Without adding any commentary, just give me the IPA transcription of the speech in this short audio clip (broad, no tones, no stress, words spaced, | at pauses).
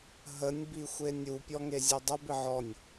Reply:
ɦənʲ bixʷenʲu pʲɔŋezʲudˤəb ɪʕɔnʲ